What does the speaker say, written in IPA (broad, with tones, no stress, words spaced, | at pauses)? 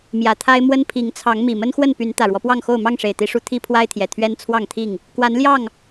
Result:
mjä˨˩t̪ʰa˦ɪ̯ mwə˦npʰi˨˦ŋ t͡sʰɑ˨˦ŋmi˨˩ mə˦nxwə˥˨n py˨˦n t̪ä˨˩ɻwɔ˦pwɑ˥˨ŋxo˥˨ʊ̯ mɑ˥˨ŋʂe˨˩ɪ̯t̪i˨˦ʂu˨˦ t̪ʰi˦pʰwa˦ɪ̯t̪ʰjɛ˨˩ t̪ʰɥɛ˦n t͡sʰwɑ˥˨ŋt̪ʰi˥˨ŋ | kwa˨˦nljɑ˥˨ŋ